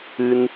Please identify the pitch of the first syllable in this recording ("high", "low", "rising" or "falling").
high